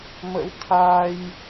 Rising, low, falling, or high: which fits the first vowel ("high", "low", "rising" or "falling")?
rising